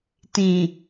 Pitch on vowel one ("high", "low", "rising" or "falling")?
low